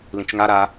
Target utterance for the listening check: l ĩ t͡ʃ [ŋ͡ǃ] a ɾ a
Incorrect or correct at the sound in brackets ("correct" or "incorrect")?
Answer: incorrect